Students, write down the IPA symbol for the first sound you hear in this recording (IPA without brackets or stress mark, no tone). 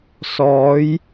s